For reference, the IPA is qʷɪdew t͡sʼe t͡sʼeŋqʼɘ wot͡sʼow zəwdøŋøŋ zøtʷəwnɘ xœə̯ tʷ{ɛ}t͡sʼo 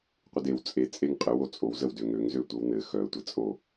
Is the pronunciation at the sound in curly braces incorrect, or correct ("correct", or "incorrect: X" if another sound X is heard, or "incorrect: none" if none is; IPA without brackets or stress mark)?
incorrect: ɘ